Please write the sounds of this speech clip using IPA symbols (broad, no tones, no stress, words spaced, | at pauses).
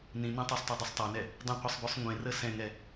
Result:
nĩnẽ tˤesˤtˤɛdˤesˤ tˤanɛ | dˤĩqʷɜsˤbʉsˤ ŋʷẽrə sɛ̃ŋɛ